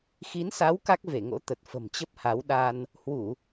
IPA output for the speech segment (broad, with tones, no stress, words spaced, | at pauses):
xi˨˦nsa˨˦w ka˦˥k̚ve˧˩ŋo̰˧˥ t̪ə˨˩t̚fə̤˨˩mt͡ɕə˦˥p̚ ha˨˦wɗa˧n | hwu˧˩˨